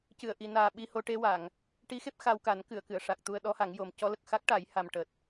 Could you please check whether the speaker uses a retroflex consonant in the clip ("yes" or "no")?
yes